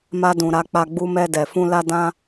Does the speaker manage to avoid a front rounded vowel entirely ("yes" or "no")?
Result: yes